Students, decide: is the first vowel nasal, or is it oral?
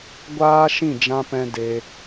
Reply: oral